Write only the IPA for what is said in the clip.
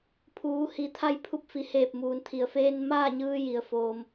pʰ uː˩˧ h i˩˧ t̪ʰ a˧ j pʰ u˧˥ p̚ f i˩ h eː˧˩ p̚ m uː˩ n t̪ʰ i˩ ə̯ f eː˧ n m aː˥˨ ɲ ɯː˧ j i˩ ə̯ f oː˩ m

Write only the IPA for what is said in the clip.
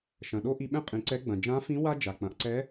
ʃ ɐ̃˩ ɗ o˥ ʔ i˧ ɓ ɛ̃˥ qʼ ĩ˩˧ ǀ ɛ˧˥ ɡ͡b ɐ̃˩ d͡ʒ ã˧˥ f ĩ˧˥ w a˥ d͡ʒ a˩ k͡p ɐ̃˩˧ ʔ ǀ ɛ˧˥

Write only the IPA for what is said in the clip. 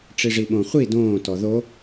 ʈ͡ʂ i ʐ i ɓ õ χʷ i d õː t ɔ ð o

